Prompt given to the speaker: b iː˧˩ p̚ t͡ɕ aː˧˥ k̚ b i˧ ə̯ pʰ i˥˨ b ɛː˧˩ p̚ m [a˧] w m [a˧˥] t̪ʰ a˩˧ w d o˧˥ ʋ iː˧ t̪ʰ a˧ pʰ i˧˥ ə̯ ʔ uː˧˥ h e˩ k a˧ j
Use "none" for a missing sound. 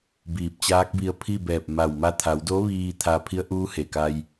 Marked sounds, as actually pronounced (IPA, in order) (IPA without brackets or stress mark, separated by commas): a˧˩, a˧˥